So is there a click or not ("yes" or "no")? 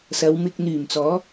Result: no